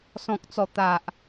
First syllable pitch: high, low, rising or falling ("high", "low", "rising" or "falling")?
low